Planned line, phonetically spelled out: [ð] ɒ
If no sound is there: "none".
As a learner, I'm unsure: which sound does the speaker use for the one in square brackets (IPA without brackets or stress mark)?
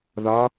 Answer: ð